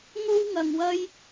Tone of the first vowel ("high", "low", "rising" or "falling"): high